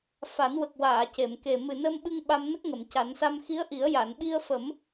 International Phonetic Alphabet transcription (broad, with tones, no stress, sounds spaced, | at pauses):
f a˨˩˦ n w ə˨˩ k̚ w aː˨˩˨ c e˨˩˨ m k e˨˩ m ɨ˨˩ n ə˧ m ɓ ɨ˧ ŋ ɓ a˧ m n ə˦˥ k̚ ŋ ə˨˩˨ m c a˨˩˦ n s a˧ m x i˧˥ ə̯ ʔ i˨˩˦ ə̯ j a˨˩˨ n ɓ i˧ ə̯ f ə˨˩˦ m